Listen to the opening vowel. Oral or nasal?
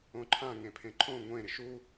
nasal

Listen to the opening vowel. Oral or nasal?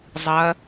oral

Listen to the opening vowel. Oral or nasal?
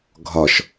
oral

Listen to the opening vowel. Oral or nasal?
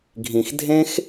nasal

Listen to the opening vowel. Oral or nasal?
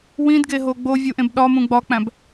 nasal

